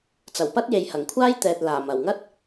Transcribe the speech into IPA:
t͡s ɐ˨˩ w p ɐ˥ t̚ j e˨ j h ɐ˨˩ ŋ kʷʰ aː˥ j t̪ ɛː˨ t̚ l aː˨˩ m ɐ˨˩ w ŋ ɐ˥ t̚

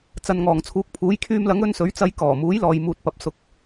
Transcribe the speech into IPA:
t͡s ɐ˧ n ŋ ɔː˨ ŋ t͡sʰ uː˨˥ k̚ pʰ uː˨˥ j kʰ yː˧ m l ɐ˨˥ ŋ ɵ˧ n s ɵ˨˥ ɥ t͡s ɐ˨˧ j k ɔː˨˩ m uː˨˥ j l ɔː˨ j m uː˨ t̚ p ɐ˨ p̚ s ʊ˨ k̚

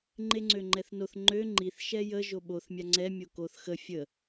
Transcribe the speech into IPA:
ŋ͡ǃ e ŋ͡ǀ ø ŋ͡ǃ ɛ θ n o θ ŋ͡ǃ ø ŋ͡ǃ i θ ʃ ɛ j ə ʒ o ɓ o θ mʲ a ŋ͡ǀ ɛ mʲ o k o θ x ə fʲ ə

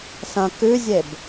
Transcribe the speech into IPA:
s ɐ̃ k ʉ zʲ e b

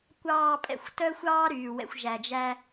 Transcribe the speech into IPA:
kʷ ɑː˨ pʼ ɛ̰˨ xʷ t œ˦ xʷ ɑː˦ ɾ yː˨ w ɛ̰˨ xʷ ʒ æ˨ d͡ʒ æ˦

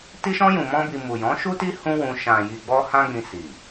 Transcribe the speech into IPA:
t i˧ ʃ ɔ̃˧ j ũ˨ m ɔ̃˧ b i˨ m u˨ j ɔ̃˨˦ ʃ u˦ t i˦ h ũ˦ w ũ˧ ʃ ã˨ j i˨ ɡ͡b ɔ˧ h ã˦ ɡ͡b ĩ˧ s i˨

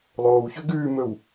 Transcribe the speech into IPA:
lˠ oː w ç ø ɡ ʉː m ɵ w

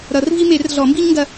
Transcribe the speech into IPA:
ɾ ʌ˨˩˦ r v i˦ m e˨˩˦ r ɮ ɔ˨˩˦ m b i˦ ɲ ŋ ɡ ɐ˦

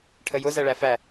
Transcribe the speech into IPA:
ʈʰ ə j ʊ z æ ɭ æ f æ

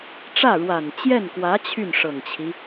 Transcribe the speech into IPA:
ʈ͡ʂ ä˥˩ ɻ w a˨˩ n t͡ɕ j ɛ˥˩ n k w ä˧˥ t͡ɕʰ y˥˩ n ʂ ɤ˨˩ ŋ t͡ɕʰ i˦

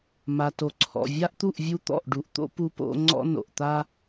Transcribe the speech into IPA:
m a˨ t o˨ ǀʰ ɔ̰˨ vʲ a˦ ʔ t̪ u˦˨ ʔ vʲ u˦ t̪ ɔ̰˦˨ ʔ ɖ u˨ ʔ t̪ o̰˦ p u˦ p o̰˦ ŋ͡ǀ ɔ̰˦ n o̰˨ ʔ t̪ a˦

